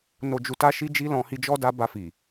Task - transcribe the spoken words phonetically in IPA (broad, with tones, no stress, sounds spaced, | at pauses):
n o˨ d͡ʒ u˨ t a˧ ʃ i˧ d͡ʒ i˧ l ɔ̃˧ h i˧ d͡ʒ ɔ˦ d a˧ b a˧ f i˨